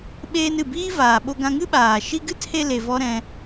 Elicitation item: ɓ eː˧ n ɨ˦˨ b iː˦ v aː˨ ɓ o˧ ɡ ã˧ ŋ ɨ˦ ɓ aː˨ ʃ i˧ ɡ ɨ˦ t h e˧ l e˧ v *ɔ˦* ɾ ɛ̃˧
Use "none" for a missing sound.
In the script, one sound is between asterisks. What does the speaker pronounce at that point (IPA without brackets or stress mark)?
ɔ˦